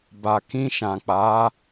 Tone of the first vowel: low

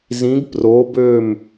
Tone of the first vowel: rising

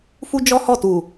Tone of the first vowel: high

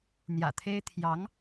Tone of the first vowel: low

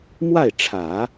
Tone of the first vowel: falling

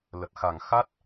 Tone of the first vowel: low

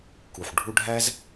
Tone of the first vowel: low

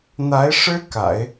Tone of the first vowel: rising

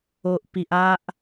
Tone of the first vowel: low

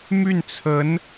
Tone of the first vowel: falling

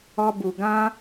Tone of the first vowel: high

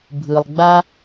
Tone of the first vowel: low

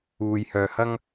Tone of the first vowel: low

